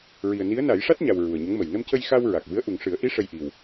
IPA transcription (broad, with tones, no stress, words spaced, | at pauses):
ɹi˨˩ə̯ni˧˥ə̯na˨˩˦j ʂa˦˥t̚ɲa˨˩w ɹu˨˩ə̯ɲə˧˥ŋmə˨˩j nə˧mcə˧jxa˧w ɹa˨˩k̚vɨ˧˥ə̯ ʔu˨˩ŋʂɨ˨˩˦ə̯ʔi˧˥ ʂə˧jʔi˨˩w